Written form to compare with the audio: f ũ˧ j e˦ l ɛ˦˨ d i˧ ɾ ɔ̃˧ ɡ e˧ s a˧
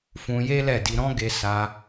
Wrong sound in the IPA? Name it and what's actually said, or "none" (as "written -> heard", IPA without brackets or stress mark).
none